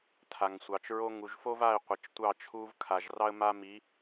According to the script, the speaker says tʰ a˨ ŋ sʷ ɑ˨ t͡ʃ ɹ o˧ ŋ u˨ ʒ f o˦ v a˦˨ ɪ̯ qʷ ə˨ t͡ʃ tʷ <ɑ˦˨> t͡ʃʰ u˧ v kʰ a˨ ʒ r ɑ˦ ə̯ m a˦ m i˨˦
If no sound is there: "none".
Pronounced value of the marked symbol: ɑ˦˨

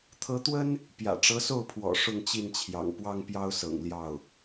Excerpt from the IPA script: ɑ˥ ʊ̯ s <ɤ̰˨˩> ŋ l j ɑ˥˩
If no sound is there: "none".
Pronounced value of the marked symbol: ɤ̰˨˩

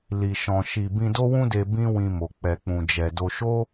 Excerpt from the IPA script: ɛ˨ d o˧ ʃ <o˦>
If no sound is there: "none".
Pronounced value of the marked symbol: o˦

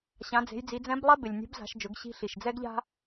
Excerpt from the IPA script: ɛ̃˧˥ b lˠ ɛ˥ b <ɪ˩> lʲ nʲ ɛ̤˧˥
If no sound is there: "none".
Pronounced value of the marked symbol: ɪ˩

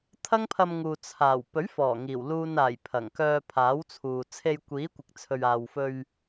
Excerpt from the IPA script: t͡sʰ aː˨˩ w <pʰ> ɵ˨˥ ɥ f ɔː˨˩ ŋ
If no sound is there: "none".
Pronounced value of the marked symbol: p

